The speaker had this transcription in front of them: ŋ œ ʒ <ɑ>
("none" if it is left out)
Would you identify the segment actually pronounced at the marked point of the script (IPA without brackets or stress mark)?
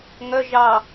ɑ